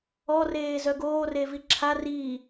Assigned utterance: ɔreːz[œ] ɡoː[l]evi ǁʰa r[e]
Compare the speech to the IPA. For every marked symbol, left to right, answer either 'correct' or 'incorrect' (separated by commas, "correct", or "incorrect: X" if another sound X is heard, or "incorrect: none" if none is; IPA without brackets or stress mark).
correct, incorrect: r, incorrect: i